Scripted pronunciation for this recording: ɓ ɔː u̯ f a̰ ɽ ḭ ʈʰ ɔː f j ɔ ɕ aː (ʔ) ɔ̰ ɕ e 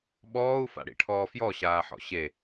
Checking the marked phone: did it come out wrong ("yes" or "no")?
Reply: yes